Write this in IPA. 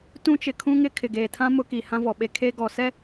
t ũ˦ t͡ʃ ɪ˨ kʰ ũ˦ ŋ ɪ˦ kʰ ɪ˨ ɡ eː˨ tʰ ã˦ m ʊ˦ k i˨ h ã˦ v ɔ˨ ɓ e˦ kʰ e˦ ɡ ɔ˨ s ɛ˦

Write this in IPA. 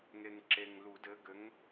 ŋ e˨ ŋ ǁ e˨ ŋ l u˨˩˦ d ɘ˨˦ ɡ ɘ˨˦ ŋ

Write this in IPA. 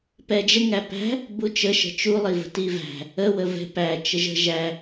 p ɛ d͡ʒ ə ŋ æ p æ̤ | b u t͡ʃ ə ʃ ə̤ t͡ʃ u lˠ i v ə̤ t i v æ̤ | ə w ə v ɛ̤ p æ t͡ʃ ə ʒ ə̤ ʒ æ

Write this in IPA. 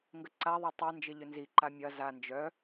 ŋ ɡ ə ǀ a ðˤ ʏ tˤ ɐ n d͡ʒ ɪ ʎ ʏ n z i ǃ a mʲ ɐ z a n d͡ʒ œ

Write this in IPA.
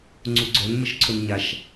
ŋ͡ǀ u ɡ͡ǀ œ n m ə ʃ ǀʰ o n ɲ a ʃ

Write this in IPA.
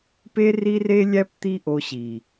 p e˦ r i˦ r e˦ lʲ æ˦ p t̪ i˦ ʔ o˧ ɕ i˨

